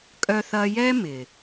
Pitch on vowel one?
high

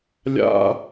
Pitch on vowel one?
high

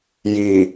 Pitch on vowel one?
low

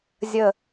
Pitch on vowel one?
low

